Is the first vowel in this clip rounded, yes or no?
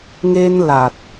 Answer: no